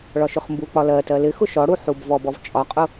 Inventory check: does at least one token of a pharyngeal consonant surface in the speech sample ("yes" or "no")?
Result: yes